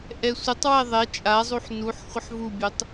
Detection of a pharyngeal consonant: present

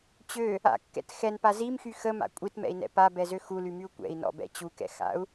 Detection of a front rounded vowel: present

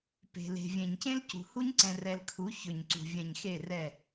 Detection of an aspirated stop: present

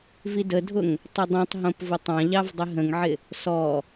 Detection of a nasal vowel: present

